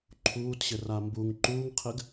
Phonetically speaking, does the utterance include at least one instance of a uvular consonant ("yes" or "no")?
yes